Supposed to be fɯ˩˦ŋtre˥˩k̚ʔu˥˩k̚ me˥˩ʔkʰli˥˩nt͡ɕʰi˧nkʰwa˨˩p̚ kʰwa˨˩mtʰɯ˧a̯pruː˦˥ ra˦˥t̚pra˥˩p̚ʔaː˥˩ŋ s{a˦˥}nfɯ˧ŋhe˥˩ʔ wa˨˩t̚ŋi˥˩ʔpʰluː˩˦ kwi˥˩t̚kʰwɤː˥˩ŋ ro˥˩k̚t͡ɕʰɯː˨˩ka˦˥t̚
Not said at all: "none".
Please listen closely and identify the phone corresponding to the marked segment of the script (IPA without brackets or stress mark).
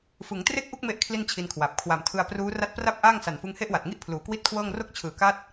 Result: a˨˩